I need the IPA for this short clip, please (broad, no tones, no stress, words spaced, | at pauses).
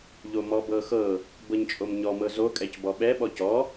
ʎomɔbɤxɤ | bɤɲt͡ʃʼomɲɔ mɤzo kʼɛcbɔɓɛ ɓɔcɔ